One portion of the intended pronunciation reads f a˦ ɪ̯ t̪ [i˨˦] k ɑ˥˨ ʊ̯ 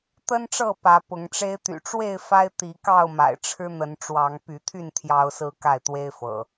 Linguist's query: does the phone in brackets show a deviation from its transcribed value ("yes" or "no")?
no